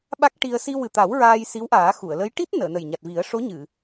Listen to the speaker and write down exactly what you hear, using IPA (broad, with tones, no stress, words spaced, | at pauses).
ɓa˦˥k̚ ʈi˧ə̯ si˧wɨ˨˩t̪a˨˩˦w ɹaː˧jsi˧˥wʔaː˨˩˦ xu˨˩˨ə̯lə˧˥j ʈi˦˥t̚ nəː˨˩˨nə˨˩jɲa˨˩t̚vi˨˩˦ə̯ ʂo˧˥ɲɨ˨˩˨